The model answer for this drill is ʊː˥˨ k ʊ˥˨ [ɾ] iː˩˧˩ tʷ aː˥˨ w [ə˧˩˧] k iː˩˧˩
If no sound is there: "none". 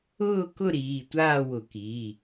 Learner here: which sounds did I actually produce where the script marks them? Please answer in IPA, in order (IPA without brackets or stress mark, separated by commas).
ɾ, ʊ˧˩˧